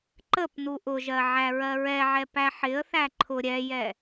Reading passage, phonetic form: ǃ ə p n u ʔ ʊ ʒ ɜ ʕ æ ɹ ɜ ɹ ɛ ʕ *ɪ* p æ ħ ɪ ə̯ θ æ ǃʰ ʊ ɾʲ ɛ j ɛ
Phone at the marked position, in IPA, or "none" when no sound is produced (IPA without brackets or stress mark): ɛ